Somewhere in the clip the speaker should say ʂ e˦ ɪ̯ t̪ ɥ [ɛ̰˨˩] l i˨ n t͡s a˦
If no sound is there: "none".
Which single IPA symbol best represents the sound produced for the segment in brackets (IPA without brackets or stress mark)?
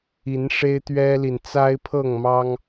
ɛ˦